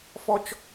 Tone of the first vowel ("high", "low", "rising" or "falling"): high